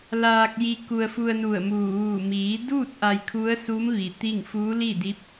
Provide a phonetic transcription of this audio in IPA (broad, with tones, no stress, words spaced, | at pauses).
laː˧k̚ji˧ ku˧ə̯fu˧ə̯nu˧˩ə̯muː˧˩ ʋuː˧˩ miː˩˧duː˥˨t̚ ʔa˧jkʰu˧˥ə̯suː˧˥m ʋi˩t̪i˥˨ŋ fuː˧˥li˥˨di˧˥p̚